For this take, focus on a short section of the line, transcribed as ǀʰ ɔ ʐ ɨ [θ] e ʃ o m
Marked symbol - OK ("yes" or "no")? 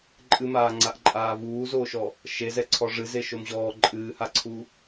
no